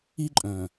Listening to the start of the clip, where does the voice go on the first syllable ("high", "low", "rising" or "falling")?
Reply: high